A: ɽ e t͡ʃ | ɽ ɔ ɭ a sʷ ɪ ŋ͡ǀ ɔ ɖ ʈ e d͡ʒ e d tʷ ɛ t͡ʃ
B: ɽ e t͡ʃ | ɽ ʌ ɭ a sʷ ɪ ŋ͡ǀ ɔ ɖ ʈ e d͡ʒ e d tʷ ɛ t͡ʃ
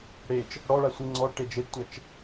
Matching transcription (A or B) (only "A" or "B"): A